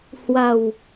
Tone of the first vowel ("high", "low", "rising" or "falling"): low